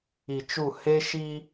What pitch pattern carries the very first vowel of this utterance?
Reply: low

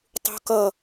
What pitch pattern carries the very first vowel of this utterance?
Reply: high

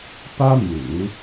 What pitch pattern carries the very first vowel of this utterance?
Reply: high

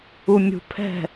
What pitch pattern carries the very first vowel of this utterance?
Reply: low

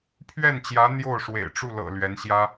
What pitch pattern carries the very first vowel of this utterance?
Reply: falling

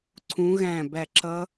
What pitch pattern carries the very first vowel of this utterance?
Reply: rising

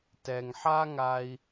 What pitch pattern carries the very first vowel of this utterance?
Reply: low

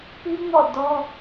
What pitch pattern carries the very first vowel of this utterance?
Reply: high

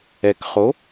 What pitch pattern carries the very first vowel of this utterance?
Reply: low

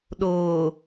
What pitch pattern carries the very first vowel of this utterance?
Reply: low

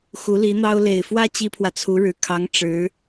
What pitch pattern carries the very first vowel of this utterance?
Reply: rising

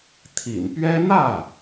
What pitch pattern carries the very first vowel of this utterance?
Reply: low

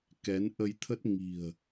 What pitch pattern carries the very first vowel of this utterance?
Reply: rising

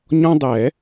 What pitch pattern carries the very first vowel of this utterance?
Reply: high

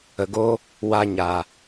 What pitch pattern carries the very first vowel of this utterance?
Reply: low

